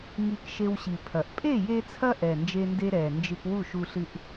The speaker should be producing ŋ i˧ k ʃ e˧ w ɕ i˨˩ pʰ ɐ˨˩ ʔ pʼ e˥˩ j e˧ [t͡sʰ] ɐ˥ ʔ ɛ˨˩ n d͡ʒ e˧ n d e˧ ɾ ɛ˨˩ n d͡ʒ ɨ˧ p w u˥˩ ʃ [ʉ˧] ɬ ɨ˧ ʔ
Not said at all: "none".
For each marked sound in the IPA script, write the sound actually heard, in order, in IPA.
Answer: t͡sʰ, u˧

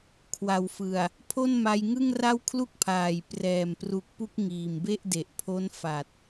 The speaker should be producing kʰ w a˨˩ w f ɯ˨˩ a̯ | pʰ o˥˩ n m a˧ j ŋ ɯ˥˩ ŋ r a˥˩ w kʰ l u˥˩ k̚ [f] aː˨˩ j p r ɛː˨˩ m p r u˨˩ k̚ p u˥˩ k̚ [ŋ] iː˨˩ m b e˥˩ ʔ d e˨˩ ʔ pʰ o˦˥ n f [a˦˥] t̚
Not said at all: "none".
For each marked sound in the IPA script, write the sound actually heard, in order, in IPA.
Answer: pʰ, ŋ, a˨˩

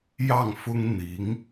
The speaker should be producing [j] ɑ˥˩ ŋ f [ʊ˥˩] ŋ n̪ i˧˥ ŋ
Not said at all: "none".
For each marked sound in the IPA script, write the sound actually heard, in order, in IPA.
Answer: j, ʊ˥

